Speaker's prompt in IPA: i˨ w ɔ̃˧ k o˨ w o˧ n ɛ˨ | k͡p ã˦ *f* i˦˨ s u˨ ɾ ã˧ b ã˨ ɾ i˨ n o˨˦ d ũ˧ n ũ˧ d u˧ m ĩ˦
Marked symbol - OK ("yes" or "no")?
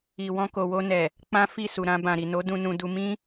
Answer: yes